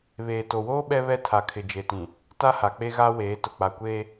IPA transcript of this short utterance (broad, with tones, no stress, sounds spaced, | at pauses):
β eː˨ t o˨ w oː˦ ɓ ɛ˦ β ɛ˦ tʰ a˨ kʰ ɪ˨ d͡ʒ e˨ t ĩ˨ | t a˦ h a˨ k͡p e˦ ɣ a˦ w eː˨˦ t ʊ˨ k͡p a˨ kʷ eː˦